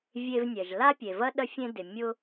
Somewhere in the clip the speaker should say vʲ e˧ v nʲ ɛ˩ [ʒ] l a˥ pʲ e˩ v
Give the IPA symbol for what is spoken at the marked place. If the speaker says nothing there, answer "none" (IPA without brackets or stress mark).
ʒ